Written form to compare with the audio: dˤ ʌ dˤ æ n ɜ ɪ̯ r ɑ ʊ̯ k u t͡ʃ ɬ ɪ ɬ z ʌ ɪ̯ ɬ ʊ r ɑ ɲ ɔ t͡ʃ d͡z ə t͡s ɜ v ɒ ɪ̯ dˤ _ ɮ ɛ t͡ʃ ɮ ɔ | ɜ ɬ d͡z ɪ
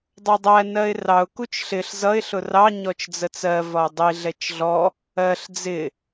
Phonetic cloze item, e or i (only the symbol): i